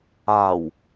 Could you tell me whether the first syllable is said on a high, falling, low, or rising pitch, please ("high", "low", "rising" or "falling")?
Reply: low